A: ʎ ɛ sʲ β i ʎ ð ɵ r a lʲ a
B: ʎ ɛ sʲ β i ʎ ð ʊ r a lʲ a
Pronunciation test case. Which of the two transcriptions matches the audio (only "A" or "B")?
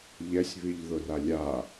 B